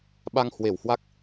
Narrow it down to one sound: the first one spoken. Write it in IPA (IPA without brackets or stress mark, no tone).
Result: ɓ